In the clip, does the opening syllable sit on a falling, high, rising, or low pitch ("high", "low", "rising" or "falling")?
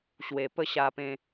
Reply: low